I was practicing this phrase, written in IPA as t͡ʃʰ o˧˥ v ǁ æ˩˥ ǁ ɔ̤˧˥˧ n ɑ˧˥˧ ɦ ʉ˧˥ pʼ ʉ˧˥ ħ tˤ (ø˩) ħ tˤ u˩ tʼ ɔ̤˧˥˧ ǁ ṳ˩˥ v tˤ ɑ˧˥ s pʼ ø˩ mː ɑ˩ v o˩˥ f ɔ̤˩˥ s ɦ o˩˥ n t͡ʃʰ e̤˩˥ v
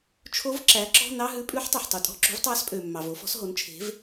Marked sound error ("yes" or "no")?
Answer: no